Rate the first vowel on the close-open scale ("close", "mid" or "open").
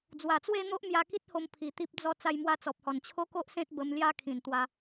open